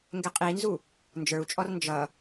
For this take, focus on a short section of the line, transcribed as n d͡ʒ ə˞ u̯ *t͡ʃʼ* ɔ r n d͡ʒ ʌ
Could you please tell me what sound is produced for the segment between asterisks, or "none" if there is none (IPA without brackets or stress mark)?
t͡ʃʼ